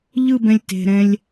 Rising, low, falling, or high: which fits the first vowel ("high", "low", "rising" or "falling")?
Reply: falling